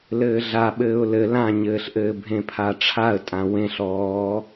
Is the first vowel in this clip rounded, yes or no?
no